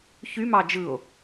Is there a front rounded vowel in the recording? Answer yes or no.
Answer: yes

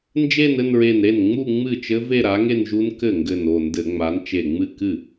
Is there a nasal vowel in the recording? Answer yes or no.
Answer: no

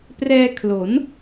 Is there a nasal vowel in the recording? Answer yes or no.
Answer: no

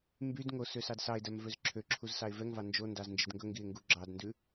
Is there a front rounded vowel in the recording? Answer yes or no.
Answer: yes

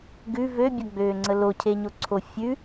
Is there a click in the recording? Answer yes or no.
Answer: yes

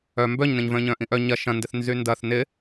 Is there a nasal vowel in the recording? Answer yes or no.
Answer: yes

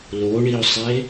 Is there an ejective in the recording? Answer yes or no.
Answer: no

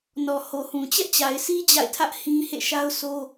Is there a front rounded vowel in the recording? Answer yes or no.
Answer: no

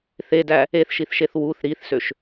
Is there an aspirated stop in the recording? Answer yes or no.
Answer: no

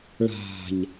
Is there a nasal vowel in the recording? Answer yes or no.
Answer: no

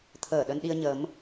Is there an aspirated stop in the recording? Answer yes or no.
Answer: yes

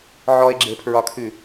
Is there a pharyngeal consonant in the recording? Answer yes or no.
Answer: yes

